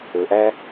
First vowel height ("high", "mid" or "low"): mid